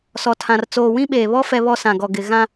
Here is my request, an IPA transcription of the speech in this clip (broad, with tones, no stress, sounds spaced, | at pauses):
s ɔ˨ tʰ ã˨ r t͡s oː˨ w ĩ˦ ɓ eː˨ β ɔ˦ f ɛ˦ β ɔ˦ s ã˨ ɡ ɔ˨ ɡ ɪ˨ ɣ ã˦